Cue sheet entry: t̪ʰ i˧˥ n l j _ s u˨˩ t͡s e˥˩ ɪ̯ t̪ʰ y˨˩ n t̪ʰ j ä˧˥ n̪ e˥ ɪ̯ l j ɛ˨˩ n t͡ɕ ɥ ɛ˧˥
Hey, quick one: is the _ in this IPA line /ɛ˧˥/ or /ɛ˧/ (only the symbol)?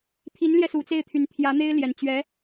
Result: ɛ˧